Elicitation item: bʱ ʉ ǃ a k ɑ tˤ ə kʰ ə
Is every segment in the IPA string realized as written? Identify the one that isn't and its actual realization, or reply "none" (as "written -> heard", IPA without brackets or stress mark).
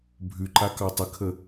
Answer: none